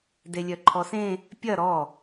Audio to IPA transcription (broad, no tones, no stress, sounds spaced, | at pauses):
d e lʲ œ ǃʰ ɔ s ẽ | pʲ ɐ ɾ ɔ